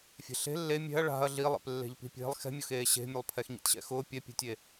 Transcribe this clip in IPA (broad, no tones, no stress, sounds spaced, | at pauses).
fʲ e̤ ɬ e̤ lː e mʲ ɛ̤ ɐ̯ ɭ a̤ ɐ̯ ɮ i lˠ ḛ p lː e̤ ʎ p i̤ pʲ e̤ lˠ x ɛ̤ mʲ ʊ x eː ɕ e̤ mʲ ʊ lˠ pʰ ɛ x ɲ ḭ t ɕ ɛ̰ x ʊː pʲ ɛ pʲ ɛ̤ tʲ e